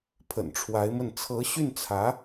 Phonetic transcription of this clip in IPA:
pʰ ə̰˨˩ n ʈ͡ʂʰ w a˧˥ ɪ̯ m ə˥˩ n t͡sʰ ɤ˧˥ ɕ y˥˩ n t͡sʰ ä˧˥

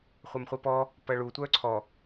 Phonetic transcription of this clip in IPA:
χʷ ɐ m χʷ ɘ p ɔ | p ɐ ɭ u tʷ œ ǀʰ ɔ

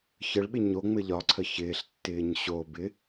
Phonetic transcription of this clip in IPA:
ç ə ɭ ɓ ɪ ɲ o ŋ͡m ɘ ʎ ɒ ǀʰ ə ç ɪː ɬ tː ɪː ɲ ɕ o b ɪ

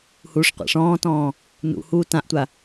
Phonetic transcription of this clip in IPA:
h uː ʂ qʷ a̰ ʂ ɔ̃ː t ɔ̃ː | n ṵ h uː t ã ʔ tʷ a

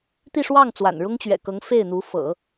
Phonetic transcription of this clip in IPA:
t̪ i˥˧ ʂ w ɑ˥˩ ŋ t͡s w a̰˨˩ n ɻ ʊ˥ ŋ t͡ɕ ɥ ɛ̰˨˩ k ɤ˧˥ ŋ f e˥˩ ɪ̯ n̪ u˧˥ f ɤ̰˨˩˦

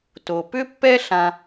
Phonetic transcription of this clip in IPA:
t o˨ p ʏ˦ pː ɛ˦ ɬ ã˦

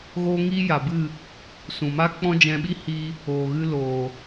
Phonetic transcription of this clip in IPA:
ɣ oː˦ ŋ iː˦ j a˨ b ɨ˦˨ | s ũ˨ m a˦ k͡p ɔ̃˦ d͡ʒ ɛ̃˧ ɓ i˦ h iː˧ | oː˨ ɣ ɨ˧ l oː˨

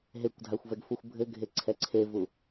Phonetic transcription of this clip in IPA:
ɦ e kʷ dʱ a xʷ v ɛ ɡ f u xʷ bʱ ɘ ɡʱ e ǀʰ ɛ ǀʰ e v u

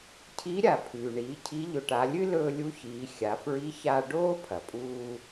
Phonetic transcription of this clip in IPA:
cʰ i˧˥ ɾʲ a˩ pʰ ʉː˩ ɳ iː˩˧ cʰ i˧˥ ʎ ɵ˧ ʈ a˧˥ lʲ ɨ˥ l ɵː˧ lʲ u˧˥ ç iː˩˧ xʲ a˩˧ f ɹ i˧˥ ç a˧ ɖ oː˥ pʰ ɐ˩ pʼ uː˧

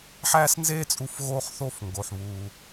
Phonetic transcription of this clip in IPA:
ħ æː˥ s n z eː˥ t͡sʼ u˧ f ɣ oː˥ χ θ oː˥ f ŋ ɡ o˩ ħ β uː˩

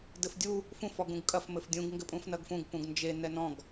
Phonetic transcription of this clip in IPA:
d ɘ f dʲ u | f ũ f ɔ ɡ ũ ɡ kʼ ɐ f m ɘ f dʲ ũ ɡ ŋ ɡ ɘ pʼ ũ f n ɐ ɡ f ũ ɡ p ũ ɡ n d͡ʒ e n ɛ n ɔ̃ ɡ

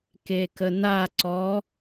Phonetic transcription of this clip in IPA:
k e k ə n a ǀ ɔ

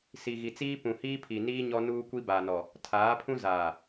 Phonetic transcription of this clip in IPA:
s i˨ ɣ i˨ t͡s iː˦ p ũ˨ h iː˦ pʰ i˨ n iː˦ ɲ ɔ˦ n uː˦ kʷ i˦ b a˨ n ɔ˨ | tʰ aː˨˦ pʰ ũ˦ z aː˨

